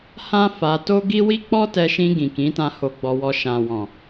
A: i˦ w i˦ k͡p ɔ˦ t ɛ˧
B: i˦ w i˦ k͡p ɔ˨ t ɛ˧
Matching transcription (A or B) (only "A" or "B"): A